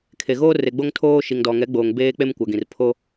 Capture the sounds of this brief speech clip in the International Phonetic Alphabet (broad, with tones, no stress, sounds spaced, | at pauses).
kʰ e˨ ɣ oː˦ r e˨ ɡ͡b o˦ ŋ tʰ oː˦ ʃ i˨ ŋ d ɔ˨ ŋ ɛ˨˦ ɡ͡b oː˨ ŋ b eː˦ k͡p e˦ m kʷ a˨ ɡ ĩ˨ r pʰ o˦